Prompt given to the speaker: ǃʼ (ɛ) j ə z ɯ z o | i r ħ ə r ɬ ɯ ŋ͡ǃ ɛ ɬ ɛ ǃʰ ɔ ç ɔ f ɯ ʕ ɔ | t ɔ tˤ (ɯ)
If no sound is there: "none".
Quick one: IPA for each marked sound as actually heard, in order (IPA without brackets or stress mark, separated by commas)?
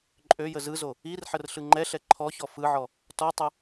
ø, ə